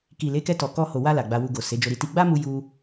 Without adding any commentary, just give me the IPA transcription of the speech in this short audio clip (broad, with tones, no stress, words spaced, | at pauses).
ki˨le˨˦kɛ˧tɔ˨ kɔ˧ho˨wa˧ la˨ɡ͡ba˧wu˧ɡo˨ se˨˦d͡ʒo˧ɾi˧ti˦ ɡ͡ba˦mu˧ju˧